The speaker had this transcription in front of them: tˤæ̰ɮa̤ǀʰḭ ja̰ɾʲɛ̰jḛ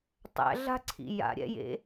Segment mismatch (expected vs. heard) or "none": none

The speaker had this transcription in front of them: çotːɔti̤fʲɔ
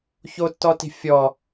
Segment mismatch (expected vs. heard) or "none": none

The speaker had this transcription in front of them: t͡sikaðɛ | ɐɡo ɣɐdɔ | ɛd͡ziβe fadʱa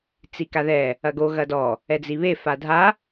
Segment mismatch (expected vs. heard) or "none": none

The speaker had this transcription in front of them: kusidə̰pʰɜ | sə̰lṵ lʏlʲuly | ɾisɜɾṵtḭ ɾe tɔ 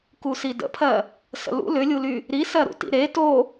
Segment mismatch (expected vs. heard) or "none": ɔ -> o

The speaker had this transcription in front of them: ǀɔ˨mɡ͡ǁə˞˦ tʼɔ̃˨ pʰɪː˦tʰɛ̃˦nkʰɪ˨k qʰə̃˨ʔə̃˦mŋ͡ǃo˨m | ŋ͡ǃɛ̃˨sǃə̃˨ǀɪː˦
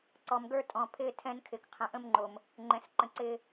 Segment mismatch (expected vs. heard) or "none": ɡ͡ǁ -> ɡ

